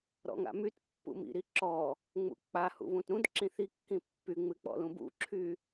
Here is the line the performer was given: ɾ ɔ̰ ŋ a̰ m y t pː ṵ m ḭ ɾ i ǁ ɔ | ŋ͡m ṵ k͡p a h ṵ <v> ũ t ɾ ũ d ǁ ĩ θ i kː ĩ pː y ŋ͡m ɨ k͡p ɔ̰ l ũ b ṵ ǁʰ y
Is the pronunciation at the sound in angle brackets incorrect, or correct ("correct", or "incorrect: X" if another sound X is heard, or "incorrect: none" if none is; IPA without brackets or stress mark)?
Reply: correct